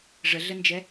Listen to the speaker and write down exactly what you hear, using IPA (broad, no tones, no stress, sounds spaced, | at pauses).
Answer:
ʐ ə ɮ ə n d͡ʒ ɛ